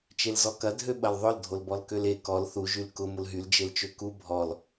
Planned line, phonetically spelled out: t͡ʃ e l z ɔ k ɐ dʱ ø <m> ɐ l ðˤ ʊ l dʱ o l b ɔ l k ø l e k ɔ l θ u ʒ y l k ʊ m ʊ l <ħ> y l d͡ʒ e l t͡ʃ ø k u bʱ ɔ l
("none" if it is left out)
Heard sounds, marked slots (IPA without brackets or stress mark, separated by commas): ɓ, ɦ